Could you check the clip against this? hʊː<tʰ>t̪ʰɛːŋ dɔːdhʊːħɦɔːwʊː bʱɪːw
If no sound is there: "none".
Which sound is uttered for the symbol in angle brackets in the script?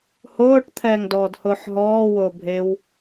ʈ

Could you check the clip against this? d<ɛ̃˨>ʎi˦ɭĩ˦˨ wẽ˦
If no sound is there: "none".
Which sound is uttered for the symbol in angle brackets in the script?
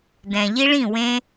ɛ̃˨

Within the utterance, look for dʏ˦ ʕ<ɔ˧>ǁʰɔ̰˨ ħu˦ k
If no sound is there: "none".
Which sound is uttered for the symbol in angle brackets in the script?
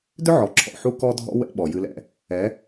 ɔ˨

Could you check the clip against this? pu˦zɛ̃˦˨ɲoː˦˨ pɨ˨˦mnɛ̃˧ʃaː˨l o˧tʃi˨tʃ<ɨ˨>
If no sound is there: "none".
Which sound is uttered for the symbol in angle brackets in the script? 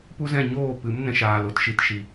i˨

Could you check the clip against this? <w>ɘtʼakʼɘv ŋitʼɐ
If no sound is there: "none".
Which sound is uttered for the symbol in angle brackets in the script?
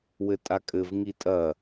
w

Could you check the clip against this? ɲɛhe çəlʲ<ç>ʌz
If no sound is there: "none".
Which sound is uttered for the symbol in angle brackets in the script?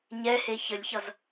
ç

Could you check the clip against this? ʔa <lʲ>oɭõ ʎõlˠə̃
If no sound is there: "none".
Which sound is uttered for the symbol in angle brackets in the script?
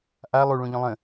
lˠ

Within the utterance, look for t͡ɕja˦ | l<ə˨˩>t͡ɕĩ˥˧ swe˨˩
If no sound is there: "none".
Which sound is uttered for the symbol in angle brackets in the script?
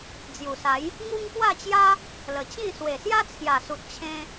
ə˨˩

